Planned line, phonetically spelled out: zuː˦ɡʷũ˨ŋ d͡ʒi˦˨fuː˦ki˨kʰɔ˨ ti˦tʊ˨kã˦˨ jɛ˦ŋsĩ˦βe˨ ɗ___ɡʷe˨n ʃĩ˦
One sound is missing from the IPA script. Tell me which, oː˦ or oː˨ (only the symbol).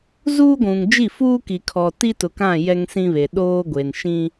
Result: oː˦